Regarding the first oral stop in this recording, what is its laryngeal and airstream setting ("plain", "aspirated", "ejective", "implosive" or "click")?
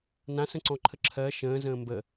click